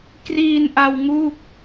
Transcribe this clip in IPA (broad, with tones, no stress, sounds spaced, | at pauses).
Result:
k r iː˧ n ʔ a˧ w ŋ u˥˩ k̚